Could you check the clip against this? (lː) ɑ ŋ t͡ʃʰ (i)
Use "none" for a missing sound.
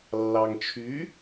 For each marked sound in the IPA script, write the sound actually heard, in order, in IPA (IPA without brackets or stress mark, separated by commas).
lː, y